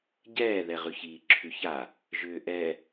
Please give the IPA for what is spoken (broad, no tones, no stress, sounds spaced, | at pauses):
ɟ ɛː ð ɛ ʁ ʉ ç iː ǁʰ ʉ ç a | ʒ ʏː ʔ ɛ